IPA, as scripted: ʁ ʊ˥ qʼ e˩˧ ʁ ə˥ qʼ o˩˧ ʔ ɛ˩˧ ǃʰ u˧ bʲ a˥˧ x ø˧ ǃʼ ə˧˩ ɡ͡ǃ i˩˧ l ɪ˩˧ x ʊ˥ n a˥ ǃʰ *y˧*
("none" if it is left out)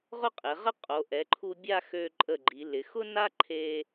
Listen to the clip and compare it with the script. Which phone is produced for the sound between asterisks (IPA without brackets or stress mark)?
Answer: e˧